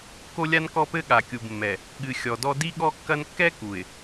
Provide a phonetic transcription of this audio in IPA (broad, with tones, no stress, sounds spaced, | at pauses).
k o˦ lʲ a˦ n k ɔ˦ p ɘ˦ ɠ a˨ kʲ u˨ b mː ɛ˨ | ɠ ɨ˨ xʲ ɔ˨ d ɔ˦ d i˦ ɠ ɔ˦ kː ɐ˦ n kː ɛ˦ k u˨ ɪ̯